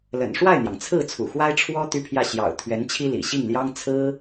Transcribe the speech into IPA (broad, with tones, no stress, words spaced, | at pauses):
lə̰˨˩nʂwa˥˩ɪ̯n̪jɑ˩ŋ t͡sʰɹ̩˥˩ t͡sʰṵ˨˩xwa˥ɪ̯ ʈ͡ʂʰwɔ˥ t̪y˥pʰjä˥˩ɕjɑ̰˨˩ʊ̯ t̪ʰɥɛ˧˥nt͡ɕʰi˥lḭ˨˩ ɕi˥˩ŋljɑ˥ŋ t͡sʰɹ̩˥